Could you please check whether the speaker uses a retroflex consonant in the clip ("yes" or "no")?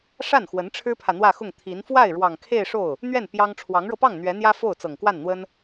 yes